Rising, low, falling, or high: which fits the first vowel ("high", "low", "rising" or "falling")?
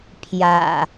low